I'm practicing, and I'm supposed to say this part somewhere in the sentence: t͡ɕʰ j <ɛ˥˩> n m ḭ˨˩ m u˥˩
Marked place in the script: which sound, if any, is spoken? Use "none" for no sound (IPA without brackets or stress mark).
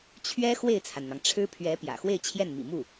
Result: ɛ˥˩